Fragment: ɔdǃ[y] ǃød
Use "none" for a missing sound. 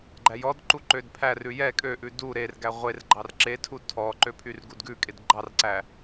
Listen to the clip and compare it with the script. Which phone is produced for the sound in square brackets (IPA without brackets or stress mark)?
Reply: u